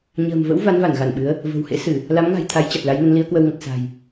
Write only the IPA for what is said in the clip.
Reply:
ɲ ə̤ː˨˩ m v ə̰˧˥ w v a˨˦ n v a˧˩ n ɣ a˧˩ n ɓ ɨ˨˦ ə̯ | v ə̤˨˩ w h ḛ˧˥ s ɨ˧˩˨ | l a˨˦ m ŋ a̤˨˩ j t̪ʰ a˨˦ j t͡ɕ a˨˩ t̚ l a˨˦ j n ə˨˦ n l i˨˦ ə̯ k w ə˧ w ŋ ə˨˩ t̚ s a̤˨˩ j

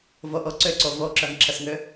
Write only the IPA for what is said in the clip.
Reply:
v o ʔ o ǀ ʏ ǀ o v o ǁ œ ŋ ǁʰ ə s ŋ ʏ

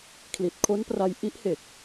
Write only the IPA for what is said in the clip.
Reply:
kʰ l i˨˩ t̚ kʰ o˦˥ n p r a˧ j ʔ i˦˥ ʔ h e˨˩ k̚

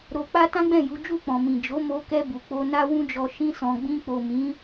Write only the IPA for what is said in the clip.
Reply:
ɾ o˧ k͡p a˦ t ã˦ ɡ͡b ɛ̃˦˨ j u˨˦ d͡ʒ u˦˨ k͡p ɔ̃˨ m ĩ˨ d͡ʒ o˨˦ m o˧ k ɛ˧ b u˨ k͡p o˧ n a˦ w ũ˦ d͡ʒ ɔ˧ ʃ ĩ˧ s ɔ̃˨ ɡ͡b ĩ˧ k͡p o˨ m ĩ˨˦

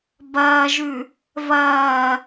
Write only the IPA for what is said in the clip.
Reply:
b ɐː ʒ ʉ | v ɐː

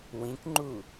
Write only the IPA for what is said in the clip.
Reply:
w ĩ k ŋ͡ǃ u

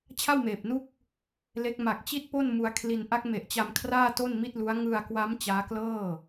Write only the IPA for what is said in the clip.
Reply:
t͡ɕʰ a˥˩ w m eː˨˩ p̚ n u˥˩ k̚ | l e˦˥ k̚ m a˨˩ k̚ t͡ɕ i˥˩ t̚ p o˥˩ n m u˧ a̯ kʰ l i˧ n ʔ a˦˥ k̚ m e˨˩ ʔ t͡ɕ a˧ m kʰ r aː˥˩ t o˥˩ n m i˥˩ t̚ l u˦˥ a̯ ŋ ɯ˧ a̯ k w a˦˥ m t͡ɕ aː˦˥ k l ɤː˥˩

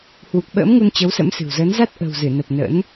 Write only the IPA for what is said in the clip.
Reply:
h w u˨˩ k̚ ɓ ə̰ː˧˥ m ŋ u˧ n t͡ɕ ə˨˦ w s ə̰˧˥ m s ɨ̤˨˩ w z əː˨˦ n z a˦˥ t̚ ʔ ə̤˨˩ w z ɨ˧˩ n ə˨˩ p̚ n ə̰˧˥ n

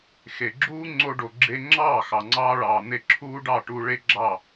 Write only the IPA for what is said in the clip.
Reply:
x e˨ ɡ͡ǁ uː˦ ŋ͡ǀ o˧ ɖ o˨ ɡ͡ǁ e˧ ŋ͡ǁ ɑː˦˨ x ɑ˨ ŋ͡ǀ ɑː˧ ɭ ɑː˨ n̪ e˧ ǁʰ uː˦ ɖ ɑ˦˨ ʈ uː˧ ɭ e˦ ɡ͡ǁ ɑ˦˨

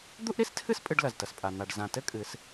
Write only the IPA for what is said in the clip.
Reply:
d̪ u˥ ʔ ɾ i˧˥ s tʰ ɨ˥ s pʼ ɨ˧ ɖ l ɐ˩ z t ɐ˩ s pʼ a˩ n̪ a˩ ɖ z ã˩ t ɘ˥ kʼ ɨ˩˧ s

